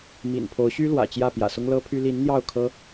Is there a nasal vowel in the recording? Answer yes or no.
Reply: no